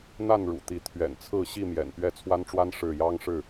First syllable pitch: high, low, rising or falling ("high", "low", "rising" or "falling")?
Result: falling